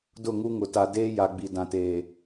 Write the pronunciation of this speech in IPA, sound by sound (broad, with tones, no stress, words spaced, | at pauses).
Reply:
dʊ˦˨ŋu˦ŋʊ˨ ta˨ deː˦ ja˨ɡ͡bi˨dã˨teː˨